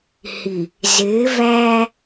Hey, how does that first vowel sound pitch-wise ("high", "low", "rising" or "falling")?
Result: low